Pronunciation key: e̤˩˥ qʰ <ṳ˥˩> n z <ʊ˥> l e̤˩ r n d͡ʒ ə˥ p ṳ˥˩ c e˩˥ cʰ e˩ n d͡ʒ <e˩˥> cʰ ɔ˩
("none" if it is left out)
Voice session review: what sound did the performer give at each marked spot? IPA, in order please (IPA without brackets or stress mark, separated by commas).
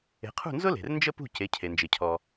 ṳ˥˩, ʊ˥, e˩